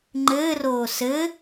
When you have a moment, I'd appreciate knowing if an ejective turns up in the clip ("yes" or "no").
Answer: no